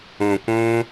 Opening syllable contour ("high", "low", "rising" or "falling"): low